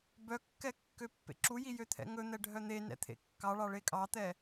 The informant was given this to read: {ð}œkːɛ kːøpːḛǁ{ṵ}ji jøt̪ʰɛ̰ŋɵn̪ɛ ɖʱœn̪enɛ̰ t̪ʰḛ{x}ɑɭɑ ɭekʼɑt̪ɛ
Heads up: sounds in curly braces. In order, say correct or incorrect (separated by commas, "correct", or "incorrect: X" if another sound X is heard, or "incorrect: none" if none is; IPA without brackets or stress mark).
incorrect: b, incorrect: u, incorrect: kː